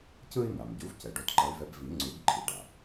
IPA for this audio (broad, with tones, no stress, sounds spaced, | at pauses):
c ɯ˥ i̯ n̪ a˩ m ɟ u˩˥ v c ɛ˩ ɖ o˧˥ t ǃ ʌ˧˥ y̯ v ɛ˧˥ b v i˨˩˦ ŋ͡ǀ u˨˩˦ ɡ ǃʰ i˩ ɖ a˩